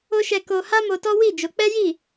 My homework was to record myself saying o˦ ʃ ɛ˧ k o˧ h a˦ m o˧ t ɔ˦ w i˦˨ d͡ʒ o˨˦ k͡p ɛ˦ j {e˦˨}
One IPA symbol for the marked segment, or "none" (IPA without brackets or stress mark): i˦˨